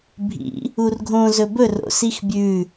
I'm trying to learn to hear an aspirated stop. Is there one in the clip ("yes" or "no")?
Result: no